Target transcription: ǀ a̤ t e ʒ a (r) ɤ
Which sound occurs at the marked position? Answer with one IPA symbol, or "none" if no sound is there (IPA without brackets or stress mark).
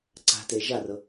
r